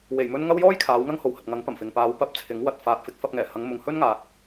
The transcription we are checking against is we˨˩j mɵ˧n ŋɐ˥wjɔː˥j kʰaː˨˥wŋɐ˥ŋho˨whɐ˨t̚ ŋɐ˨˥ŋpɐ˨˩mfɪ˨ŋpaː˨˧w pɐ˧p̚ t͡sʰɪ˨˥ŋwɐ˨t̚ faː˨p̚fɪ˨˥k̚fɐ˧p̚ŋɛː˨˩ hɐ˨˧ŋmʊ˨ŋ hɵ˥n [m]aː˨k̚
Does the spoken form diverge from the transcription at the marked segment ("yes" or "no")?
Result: yes